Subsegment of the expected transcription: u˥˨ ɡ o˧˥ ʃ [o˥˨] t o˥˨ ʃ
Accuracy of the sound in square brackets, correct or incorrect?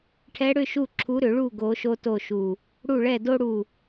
incorrect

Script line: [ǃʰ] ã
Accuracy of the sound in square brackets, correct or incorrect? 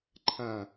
correct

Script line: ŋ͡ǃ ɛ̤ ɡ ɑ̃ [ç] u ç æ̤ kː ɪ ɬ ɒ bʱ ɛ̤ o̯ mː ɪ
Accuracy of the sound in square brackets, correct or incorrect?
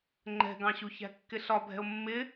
incorrect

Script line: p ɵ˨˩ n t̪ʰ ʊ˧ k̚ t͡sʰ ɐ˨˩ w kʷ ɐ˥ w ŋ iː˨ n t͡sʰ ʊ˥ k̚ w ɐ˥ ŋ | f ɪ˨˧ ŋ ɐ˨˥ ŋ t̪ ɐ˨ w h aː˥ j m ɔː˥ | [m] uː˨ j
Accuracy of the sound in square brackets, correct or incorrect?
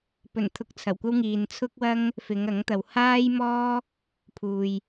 incorrect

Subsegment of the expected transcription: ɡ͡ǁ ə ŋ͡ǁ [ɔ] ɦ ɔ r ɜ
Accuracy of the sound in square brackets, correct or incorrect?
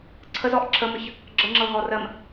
incorrect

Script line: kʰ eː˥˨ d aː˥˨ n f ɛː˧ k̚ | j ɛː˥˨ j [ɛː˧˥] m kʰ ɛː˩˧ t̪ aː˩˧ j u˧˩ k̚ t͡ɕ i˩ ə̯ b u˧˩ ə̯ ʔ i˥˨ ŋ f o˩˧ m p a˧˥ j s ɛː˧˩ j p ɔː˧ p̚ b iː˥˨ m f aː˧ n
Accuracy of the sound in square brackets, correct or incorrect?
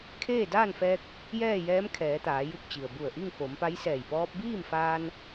correct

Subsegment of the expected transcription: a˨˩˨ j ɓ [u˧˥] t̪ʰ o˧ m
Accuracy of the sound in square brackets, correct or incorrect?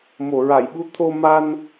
correct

